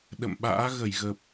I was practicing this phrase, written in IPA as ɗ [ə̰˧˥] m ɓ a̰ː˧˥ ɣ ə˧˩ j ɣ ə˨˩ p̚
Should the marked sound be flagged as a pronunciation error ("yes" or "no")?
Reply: yes